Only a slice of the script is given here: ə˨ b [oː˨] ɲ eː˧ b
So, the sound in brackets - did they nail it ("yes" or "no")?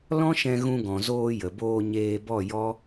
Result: no